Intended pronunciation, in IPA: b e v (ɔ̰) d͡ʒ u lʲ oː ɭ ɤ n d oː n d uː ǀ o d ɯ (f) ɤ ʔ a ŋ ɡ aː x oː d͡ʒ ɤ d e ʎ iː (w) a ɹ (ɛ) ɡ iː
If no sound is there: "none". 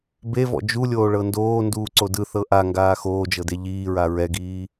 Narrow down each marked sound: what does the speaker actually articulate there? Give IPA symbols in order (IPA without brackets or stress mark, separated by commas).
ɔ̰, θ, ɹ, ɛ